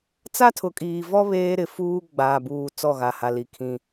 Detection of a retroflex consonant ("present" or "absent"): absent